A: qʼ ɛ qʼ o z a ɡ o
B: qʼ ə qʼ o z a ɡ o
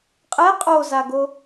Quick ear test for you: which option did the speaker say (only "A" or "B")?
A